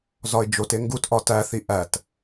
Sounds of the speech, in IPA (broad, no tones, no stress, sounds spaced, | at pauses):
z ɒ ɪ̯ d͡ʒ o t e ŋ ɡ u t ʔ ɒ t æ θ i ʔ æ t